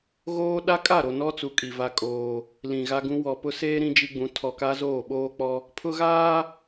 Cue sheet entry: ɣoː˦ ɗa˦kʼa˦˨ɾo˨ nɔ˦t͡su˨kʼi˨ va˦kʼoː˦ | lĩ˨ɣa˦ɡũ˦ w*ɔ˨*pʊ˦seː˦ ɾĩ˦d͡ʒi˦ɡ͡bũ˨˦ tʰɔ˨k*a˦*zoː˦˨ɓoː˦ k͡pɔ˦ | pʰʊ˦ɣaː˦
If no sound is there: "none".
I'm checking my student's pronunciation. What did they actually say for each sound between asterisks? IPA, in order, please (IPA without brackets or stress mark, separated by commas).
ɔ˨, a˦